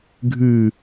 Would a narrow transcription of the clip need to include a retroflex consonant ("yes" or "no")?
no